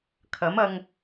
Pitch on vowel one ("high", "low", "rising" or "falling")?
rising